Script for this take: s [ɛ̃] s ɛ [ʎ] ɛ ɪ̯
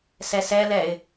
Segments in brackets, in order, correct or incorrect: incorrect: ɛ, incorrect: l

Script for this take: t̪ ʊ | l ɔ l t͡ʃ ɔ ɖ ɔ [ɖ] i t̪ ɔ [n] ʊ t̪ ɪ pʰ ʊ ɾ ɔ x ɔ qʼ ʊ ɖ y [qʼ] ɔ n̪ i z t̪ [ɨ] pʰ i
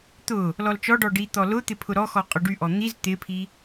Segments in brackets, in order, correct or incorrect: correct, incorrect: l, incorrect: ʔ, incorrect: ɪ

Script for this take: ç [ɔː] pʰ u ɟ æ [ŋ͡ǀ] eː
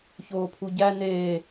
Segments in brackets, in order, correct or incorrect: incorrect: oː, incorrect: n

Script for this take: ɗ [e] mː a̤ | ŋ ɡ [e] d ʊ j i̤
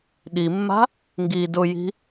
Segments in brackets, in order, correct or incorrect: incorrect: i, incorrect: i

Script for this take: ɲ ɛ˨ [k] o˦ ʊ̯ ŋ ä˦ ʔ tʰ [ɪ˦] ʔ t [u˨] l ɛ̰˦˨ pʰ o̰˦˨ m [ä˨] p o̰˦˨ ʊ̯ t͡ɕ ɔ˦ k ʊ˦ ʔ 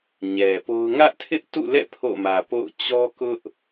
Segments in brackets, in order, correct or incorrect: incorrect: p, correct, incorrect: ṵ˦˨, correct

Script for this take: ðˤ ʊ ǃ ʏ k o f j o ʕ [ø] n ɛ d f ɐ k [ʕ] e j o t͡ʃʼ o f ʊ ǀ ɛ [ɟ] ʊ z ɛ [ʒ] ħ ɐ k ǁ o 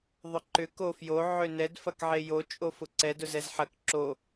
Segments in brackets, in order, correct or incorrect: correct, correct, incorrect: d, incorrect: z

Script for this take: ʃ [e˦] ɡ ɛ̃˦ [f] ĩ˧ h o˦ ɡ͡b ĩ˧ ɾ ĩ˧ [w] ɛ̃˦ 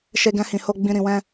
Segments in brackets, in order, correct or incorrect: correct, incorrect: h, correct

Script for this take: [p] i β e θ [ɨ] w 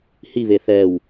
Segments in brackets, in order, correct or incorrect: incorrect: h, incorrect: ɛ

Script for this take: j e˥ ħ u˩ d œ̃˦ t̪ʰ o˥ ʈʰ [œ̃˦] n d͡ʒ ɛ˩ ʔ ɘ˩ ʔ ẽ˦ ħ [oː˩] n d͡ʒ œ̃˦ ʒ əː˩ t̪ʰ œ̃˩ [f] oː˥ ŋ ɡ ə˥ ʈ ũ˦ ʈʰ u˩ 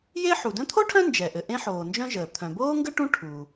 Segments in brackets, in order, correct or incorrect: correct, correct, incorrect: b

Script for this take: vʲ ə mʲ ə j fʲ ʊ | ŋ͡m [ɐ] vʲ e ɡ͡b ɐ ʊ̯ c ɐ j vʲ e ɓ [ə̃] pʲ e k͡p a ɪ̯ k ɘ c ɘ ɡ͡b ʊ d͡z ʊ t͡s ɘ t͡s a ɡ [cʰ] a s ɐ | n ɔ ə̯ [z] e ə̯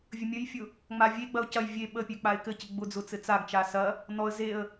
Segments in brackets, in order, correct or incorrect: incorrect: a, incorrect: ə, incorrect: t͡ʃ, correct

